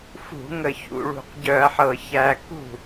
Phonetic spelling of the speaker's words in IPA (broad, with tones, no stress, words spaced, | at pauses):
fṳ˧˩˧ŋə˨˩ çṵ˨˩ɭṳ˧˩˧qɟœ˧˩˧ɐ̯ħɤ˨˩ çæ˨˩ kṳ˥˩